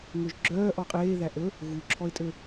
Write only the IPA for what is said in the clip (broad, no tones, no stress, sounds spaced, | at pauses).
ŋ ø ʒ ɡ͡ǁ œː ʔ ɔ qʼ eː ð æ ʔ ɵ | ɣ u ǁʰ ɔ ɪ̯ tʼ ø